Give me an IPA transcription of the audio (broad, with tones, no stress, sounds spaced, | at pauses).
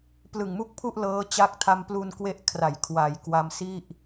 p l ɯ˨˩ ŋ m u˥˩ k̚ pʰ u˥˩ ʔ l ɤː˦˥ t͡ɕ a˦˥ k̚ tʰ a˧ m p l u˧ n k w e˦˥ ʔ kʰ r a˨˩ j kʰ w a˩˦ j k w a˧ m s i˥˩ ʔ